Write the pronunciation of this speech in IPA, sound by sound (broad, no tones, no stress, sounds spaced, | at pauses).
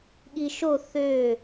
ɠ i ʃ o θ ø